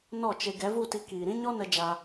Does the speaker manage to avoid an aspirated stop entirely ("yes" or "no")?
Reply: yes